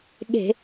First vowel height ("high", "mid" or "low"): mid